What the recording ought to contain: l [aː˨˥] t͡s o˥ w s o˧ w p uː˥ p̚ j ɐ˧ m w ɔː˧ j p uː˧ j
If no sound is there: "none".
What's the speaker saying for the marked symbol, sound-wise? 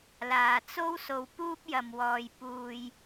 aː˨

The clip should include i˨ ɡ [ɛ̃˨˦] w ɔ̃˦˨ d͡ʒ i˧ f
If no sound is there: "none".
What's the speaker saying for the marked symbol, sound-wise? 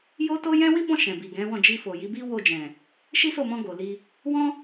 ɛ̃˨˦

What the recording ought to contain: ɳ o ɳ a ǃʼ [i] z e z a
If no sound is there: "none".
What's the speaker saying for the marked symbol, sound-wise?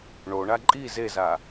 i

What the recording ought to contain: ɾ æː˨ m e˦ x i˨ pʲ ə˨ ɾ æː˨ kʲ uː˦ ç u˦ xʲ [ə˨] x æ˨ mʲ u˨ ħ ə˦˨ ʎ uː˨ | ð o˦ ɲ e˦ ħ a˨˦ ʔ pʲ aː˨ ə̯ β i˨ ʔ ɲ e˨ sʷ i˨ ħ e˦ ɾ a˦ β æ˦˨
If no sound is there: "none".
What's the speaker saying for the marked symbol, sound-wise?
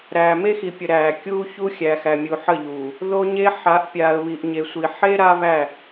æ˨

